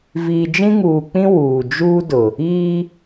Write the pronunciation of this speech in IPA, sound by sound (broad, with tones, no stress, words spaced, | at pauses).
viː˨d͡ʒĩ˦ŋuː˨k͡pĩ˦ wuː˨ d͡ʒuː˦dʊ˨ | iː˦